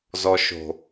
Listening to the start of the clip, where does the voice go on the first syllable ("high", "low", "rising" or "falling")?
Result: low